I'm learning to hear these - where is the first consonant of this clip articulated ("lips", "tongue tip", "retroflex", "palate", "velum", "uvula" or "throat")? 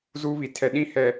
tongue tip